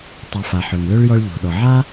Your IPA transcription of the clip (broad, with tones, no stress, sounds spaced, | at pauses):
tˤ ø˨ f a˩ ħ ø˩ ŋ l ø˥ ɭ j ɔ˦ ɭ ʎ o̤˩ ɗ ɔ˩ ʕ a˥